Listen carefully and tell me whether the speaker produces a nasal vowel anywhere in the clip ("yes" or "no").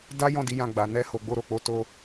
yes